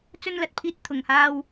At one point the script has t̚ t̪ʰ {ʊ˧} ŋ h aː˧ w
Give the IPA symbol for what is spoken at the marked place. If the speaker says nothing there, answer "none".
ʊ˨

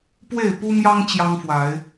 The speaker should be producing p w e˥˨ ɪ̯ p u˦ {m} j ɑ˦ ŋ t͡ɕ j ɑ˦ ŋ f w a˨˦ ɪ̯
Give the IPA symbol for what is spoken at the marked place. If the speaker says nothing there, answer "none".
m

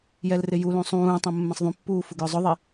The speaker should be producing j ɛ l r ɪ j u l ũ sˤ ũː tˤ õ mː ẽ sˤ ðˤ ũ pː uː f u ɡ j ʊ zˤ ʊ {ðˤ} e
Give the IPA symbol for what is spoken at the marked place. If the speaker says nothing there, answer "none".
ðˤ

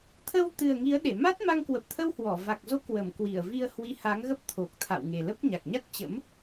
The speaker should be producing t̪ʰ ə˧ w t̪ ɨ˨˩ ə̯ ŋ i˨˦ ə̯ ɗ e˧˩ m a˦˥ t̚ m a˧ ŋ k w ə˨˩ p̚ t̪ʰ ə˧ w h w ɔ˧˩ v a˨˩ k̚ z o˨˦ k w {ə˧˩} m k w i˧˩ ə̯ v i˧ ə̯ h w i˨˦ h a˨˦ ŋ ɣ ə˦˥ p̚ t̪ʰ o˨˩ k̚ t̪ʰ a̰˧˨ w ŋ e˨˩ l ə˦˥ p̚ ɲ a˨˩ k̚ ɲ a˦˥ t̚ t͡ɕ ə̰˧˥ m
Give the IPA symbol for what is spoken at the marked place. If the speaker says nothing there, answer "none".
ə˧˩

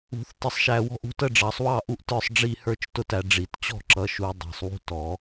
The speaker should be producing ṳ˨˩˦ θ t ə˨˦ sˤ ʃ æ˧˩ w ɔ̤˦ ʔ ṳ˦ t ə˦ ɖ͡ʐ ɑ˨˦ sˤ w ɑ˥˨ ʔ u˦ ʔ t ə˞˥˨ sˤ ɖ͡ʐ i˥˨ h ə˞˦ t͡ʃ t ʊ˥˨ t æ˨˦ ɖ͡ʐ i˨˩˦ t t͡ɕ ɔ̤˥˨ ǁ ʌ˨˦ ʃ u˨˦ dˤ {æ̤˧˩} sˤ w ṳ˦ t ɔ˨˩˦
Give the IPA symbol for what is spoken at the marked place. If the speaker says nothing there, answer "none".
æ̤˧˩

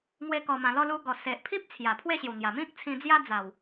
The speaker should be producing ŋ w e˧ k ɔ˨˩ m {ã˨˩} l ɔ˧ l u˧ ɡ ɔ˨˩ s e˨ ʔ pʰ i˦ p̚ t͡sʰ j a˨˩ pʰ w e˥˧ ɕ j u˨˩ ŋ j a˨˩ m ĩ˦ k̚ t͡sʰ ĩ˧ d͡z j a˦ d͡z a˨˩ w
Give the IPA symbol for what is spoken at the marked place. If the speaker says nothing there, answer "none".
ã˨˩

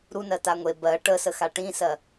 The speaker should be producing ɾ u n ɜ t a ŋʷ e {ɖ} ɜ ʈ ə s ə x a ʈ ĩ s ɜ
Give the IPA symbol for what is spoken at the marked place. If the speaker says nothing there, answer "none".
b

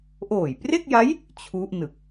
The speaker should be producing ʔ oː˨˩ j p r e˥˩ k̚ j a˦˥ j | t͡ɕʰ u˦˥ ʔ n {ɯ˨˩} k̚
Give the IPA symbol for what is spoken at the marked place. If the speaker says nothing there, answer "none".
ɯ˨˩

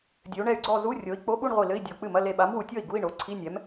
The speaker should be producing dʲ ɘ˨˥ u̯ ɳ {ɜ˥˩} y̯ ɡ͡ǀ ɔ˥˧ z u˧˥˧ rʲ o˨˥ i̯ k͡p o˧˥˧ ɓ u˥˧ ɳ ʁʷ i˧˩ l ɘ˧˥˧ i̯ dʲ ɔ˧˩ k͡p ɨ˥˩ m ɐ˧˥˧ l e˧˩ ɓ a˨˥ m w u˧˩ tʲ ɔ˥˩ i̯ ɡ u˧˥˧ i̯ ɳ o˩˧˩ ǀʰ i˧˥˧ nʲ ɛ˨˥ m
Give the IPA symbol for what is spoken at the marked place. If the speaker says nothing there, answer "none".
ɛ˥˩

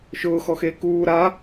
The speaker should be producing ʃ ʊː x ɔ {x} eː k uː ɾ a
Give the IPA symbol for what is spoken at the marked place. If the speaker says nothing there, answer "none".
x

